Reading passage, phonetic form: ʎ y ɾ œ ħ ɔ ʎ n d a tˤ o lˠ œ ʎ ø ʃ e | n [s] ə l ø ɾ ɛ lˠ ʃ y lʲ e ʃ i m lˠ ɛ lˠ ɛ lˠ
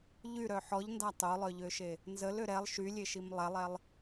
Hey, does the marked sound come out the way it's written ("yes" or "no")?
no